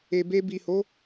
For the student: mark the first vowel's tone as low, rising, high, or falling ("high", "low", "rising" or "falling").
low